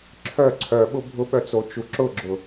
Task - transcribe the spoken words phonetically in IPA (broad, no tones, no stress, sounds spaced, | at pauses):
ǁʰ œ ǀʰ œ ɓ ʊ bʱ ʊ ɓ œ t͡s o t͡ʃ u ǁ ʊ ɡ͡ǁ ʊ